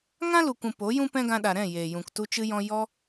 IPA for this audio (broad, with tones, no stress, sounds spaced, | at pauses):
ŋ ã˦ l u˨ kʷ ũ˨ p o˨˦ j ũ˦ p ɛ̃˦ ɡ ã˧ ɗ a˨ ɾ ɛ̃˦˨ j eː˨ j ũ˨ k t u˧ t͡ʃ ɨ˧ j ɔ̃˧ j ɔ˧